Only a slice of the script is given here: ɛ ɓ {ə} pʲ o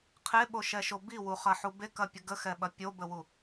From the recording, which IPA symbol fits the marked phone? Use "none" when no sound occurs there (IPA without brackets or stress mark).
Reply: ɐ